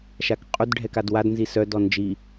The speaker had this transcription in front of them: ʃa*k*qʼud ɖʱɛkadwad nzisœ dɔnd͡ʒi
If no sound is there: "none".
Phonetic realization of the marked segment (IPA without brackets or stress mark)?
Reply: k